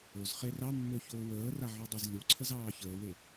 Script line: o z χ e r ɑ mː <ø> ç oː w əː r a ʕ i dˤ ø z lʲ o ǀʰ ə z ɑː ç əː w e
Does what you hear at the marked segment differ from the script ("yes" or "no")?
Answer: no